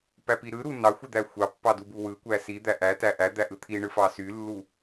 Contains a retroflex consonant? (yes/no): yes